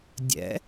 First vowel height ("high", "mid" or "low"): mid